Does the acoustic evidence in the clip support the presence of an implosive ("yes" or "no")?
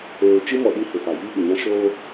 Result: yes